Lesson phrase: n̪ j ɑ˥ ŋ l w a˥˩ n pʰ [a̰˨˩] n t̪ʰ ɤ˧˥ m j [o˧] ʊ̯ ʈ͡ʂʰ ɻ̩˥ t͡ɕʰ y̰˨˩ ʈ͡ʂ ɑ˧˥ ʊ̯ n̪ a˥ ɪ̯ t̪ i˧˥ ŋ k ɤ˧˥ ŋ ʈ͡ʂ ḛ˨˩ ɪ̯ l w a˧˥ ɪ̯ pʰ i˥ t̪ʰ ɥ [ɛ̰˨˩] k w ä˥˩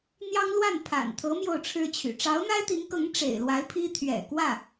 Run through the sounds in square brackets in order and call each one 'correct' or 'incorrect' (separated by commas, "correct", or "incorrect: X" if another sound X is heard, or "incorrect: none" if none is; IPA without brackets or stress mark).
correct, incorrect: o˥˩, correct